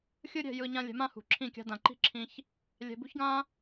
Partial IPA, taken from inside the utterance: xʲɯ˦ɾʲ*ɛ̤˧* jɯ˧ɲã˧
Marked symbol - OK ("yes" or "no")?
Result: yes